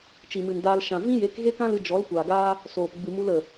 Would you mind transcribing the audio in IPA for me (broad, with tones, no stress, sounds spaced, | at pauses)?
t͡ʃ i˨ m ɨ˨ n d aː˧ l ʃ ã˨ v ĩ˦ j e˨˦ k ɣ e˦ k ã˦ l ɨ˧ d͡ʒ ɔ˨˦ l kʷ aː˨ ɡ aː˦ | s oː˨ p ɡ͡b ɨ˨ m u˧ l ə˨